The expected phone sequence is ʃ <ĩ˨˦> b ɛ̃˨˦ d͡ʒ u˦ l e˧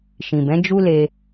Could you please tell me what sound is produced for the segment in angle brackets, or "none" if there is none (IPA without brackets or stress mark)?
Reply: ĩ˨